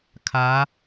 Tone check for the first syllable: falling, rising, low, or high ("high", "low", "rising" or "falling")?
rising